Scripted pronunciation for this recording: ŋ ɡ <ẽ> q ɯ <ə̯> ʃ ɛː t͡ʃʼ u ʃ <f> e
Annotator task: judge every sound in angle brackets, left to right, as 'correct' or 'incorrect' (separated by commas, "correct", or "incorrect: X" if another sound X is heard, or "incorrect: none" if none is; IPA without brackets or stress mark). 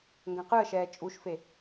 incorrect: ɛ̃, correct, correct